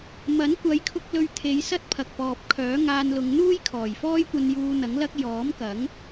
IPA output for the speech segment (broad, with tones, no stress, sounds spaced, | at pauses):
m ɐ˨˥ n kʷ ɐ˨˧ j kʰ ʊ˧ k̚ l ɵ˧ ɥ t̪ʰ e˨˧ j s ɐ˥ t̚ pʰ ɐ˨ k̚ p ɔː˨ p̚ kʰ œː˨˥ ŋ aː˧ n l ʊ˨˧ ŋ n̪ uː˥ j kʰ ɔː˨˩ j f ɔː˥ j kʷ ɐ˧ n j uː˧ n̪ ɐ˨˥ ŋ l ɐ˥ k̚ j ɔː˨˥ m k ɐ˨˥ ŋ